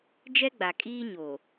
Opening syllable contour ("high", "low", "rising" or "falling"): high